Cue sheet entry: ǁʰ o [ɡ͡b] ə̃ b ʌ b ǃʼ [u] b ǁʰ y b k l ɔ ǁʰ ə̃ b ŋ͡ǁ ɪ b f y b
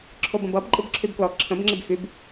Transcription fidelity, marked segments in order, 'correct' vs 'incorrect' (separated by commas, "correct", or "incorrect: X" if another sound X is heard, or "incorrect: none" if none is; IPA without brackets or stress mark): incorrect: b, incorrect: ɯ